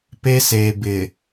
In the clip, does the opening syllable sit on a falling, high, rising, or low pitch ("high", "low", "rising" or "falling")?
high